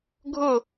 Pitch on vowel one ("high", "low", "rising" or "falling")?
falling